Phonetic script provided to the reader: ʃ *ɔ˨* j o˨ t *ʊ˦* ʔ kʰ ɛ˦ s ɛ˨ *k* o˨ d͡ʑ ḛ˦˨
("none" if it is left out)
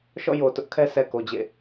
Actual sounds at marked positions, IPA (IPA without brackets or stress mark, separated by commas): ɔ̰˦˨, ʊ˦, k